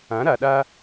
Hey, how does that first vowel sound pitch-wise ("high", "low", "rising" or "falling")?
rising